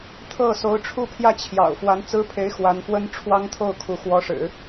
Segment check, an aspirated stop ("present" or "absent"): present